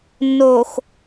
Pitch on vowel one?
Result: low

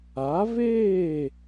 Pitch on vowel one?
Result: rising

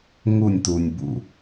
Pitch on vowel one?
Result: falling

